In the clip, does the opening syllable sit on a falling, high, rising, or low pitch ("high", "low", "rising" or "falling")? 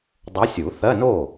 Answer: rising